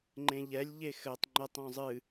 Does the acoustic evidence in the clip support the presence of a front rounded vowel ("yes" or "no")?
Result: no